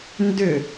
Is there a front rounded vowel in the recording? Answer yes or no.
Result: yes